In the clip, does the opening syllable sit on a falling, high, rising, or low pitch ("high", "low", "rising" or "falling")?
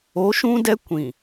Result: rising